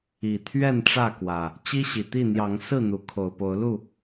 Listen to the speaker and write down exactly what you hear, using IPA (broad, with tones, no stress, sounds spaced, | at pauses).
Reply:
i˨˩ t̪ʰ ɥ ɛ˥˨ n ʈ͡ʂ ä˥˨ k w ä˨˩ | t͡ɕ i˦ ɕ i˨˩ t̪ i˥˨ n̪ j ɑ˨˦ ŋ s ɹ̩˥˨ n̪ u˨˦ kʰ o˨˩ ʊ̯ p o˨˦ ʊ̯ l u˥˨